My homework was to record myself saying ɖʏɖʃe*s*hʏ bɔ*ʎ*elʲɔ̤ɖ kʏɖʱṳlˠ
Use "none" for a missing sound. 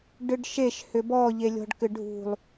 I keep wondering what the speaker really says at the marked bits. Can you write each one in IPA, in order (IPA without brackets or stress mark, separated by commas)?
ʃ, ʎ